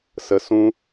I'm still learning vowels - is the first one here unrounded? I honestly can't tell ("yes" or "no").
yes